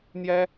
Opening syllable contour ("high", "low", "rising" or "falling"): high